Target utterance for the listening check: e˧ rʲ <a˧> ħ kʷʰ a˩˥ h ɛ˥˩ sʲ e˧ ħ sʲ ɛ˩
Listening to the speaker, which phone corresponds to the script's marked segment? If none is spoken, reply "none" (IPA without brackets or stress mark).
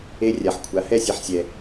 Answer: a˩